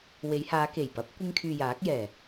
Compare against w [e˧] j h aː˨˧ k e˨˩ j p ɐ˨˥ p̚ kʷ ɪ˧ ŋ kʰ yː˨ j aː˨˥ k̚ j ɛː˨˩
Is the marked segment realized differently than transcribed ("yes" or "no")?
yes